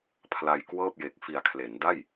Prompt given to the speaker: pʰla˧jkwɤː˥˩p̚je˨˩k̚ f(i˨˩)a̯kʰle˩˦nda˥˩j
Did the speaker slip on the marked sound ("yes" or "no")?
no